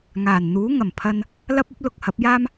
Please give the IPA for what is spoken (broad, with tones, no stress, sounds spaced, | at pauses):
ŋ aː˨˩ n n̪ uː˨˥ ŋ ɐ˨˩ m pʰ ɐ˧ n | l ɐ˥ p̚ ɐ˥ p̚ l ʊ˨ k̚ h ɐ˨˥ p̚ j aː˥ m